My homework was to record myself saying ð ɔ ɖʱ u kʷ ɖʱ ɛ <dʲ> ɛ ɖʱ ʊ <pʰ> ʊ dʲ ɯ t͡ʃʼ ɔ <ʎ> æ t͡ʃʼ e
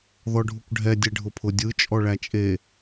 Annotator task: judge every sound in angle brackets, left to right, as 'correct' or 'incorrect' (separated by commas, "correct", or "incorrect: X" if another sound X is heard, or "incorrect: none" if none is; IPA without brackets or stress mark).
correct, correct, incorrect: ɭ